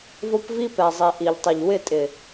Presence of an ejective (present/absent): present